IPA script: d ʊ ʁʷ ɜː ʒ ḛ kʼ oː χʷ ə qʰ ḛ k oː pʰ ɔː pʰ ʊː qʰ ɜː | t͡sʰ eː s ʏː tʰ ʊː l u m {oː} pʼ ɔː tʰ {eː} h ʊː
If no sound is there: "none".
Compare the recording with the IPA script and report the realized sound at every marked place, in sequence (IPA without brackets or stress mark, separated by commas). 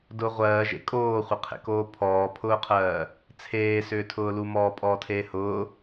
ɔː, eː